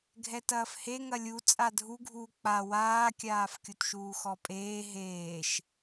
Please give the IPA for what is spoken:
ɡʱɛtɐːfhe ŋɐlʲu t͡sʼadʱuɡʱuː k͡pa waːkʲaːf kʲutʃuːxɔpʼeː ɦeːʃ

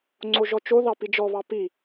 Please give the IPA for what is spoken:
ŋ͡ǀoʒɔt͡ʃo ðɑpid͡ʒɔβɑ pi

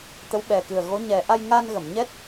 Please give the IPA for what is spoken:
t̪ə˧˥wɓɛ˨˩ kɨ˨˩ə̯ɣo˧˥ ɲɛ˨˩ ʔa˧jŋa˧nɣə˨˩˨mɲɛ˦˥t̚

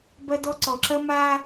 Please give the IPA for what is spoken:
bɐ˦dɔ˦ǀɔ˨ ǁɐ˦ma˦

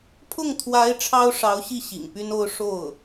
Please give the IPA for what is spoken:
pʰʊ˥˩ŋt̪ʰwa˧˥ɪ̯ ʈ͡ʂʰɑ˥ʊ̯ʂɑ˧˥ʊ̯ɕi˥˩ ɕḭ˨˩ŋpy˥no˥ʊ̯ ʂo˥˩ʊ̯

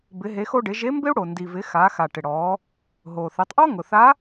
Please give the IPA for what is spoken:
bɪ˩˧ɦe˩˧xo˧ɖɪ˩˧ ʒe˧˥mbɪ˥u̯ ɽo˩ndi˩vɪ˩˧ xa˩˧xa˩ ʈɪ˩ɽɔː˩˧ | ɦoː˩θe˩˧tˤʔɔ˥ ŋʊ˩ θa˧˥

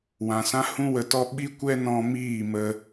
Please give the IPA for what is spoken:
wã˨sã˦ hũ˦wə˧tɔ˦ ɓi˦kʷɛ˦ nɔ̃˦ miː˦˨ mə˦

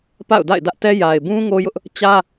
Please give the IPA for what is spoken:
pa̰˦˨ʊ̯ da̰˦˨ɪ̯dä˦ʔtɛ˦ ja˨ɪ̯bũ˦ ŋo˦jʊ˦ʔ | t͡ɕä˦

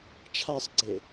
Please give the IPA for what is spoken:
t͡ʃʰasˤɡ͡ǀe

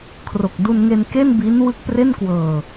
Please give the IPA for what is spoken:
kʰro˨˩k̚du˧nŋe˧n ke˥˩nbi˦˥n wɯ˦˥k̚pre˥˩nkwɤː˧

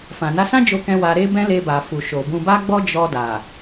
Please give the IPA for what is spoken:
fã˨na˨˦sã˦ d͡ʒo˧kɛ̃˧ wa˧ɾe˦bɛ̃˦ le˧ba˨ fu˨ʃo˨ bũ˨ba˧ɡ͡bɔ˧ d͡ʒɔ˧da˨

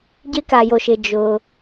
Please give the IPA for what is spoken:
ɟɪ˧˥ka˩jo˩ʃɪ˩ d͡ʒʊ˩

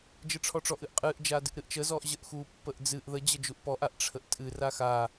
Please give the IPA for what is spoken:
d͡ʒɨʈ͡ʂʰɔʈ͡ʂɔʔɨʔ qʼɨʔd͡ʒa dɨʔɾɨʔt͡ʃəzɔʔ ʑəʔxupːəʔ d͡zɨʔ ðə d͡ʑəd͡ʒuʔpɔʔaʔ ʈ͡ʂʰəʔtʼɨra xa

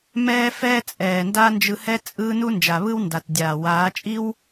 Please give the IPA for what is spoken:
mɛː˦ fɛː˦t͡sʼɛː˨nda˦ nd͡ʒɯ˧hɛ˦ t͡sʼɯː˦ nu˦nd͡ʒa˨βɯ˦w nda˨tdʲaː˨waː˨˦t͡ʃʼi˦w

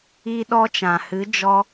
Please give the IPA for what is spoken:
i˦ɗɔ˦t͡ʃã˨ hɨ˨˦d͡ʒɔ˧

